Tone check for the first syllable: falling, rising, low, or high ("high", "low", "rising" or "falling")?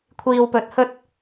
low